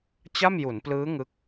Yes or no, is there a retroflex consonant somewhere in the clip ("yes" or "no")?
no